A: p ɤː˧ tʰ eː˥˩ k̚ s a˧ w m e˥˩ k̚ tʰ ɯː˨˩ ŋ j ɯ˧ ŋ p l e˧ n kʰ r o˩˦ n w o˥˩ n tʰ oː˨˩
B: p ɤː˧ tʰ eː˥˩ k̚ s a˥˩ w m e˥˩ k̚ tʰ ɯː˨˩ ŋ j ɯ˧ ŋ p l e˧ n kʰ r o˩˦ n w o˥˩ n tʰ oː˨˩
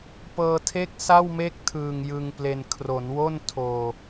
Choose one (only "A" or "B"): B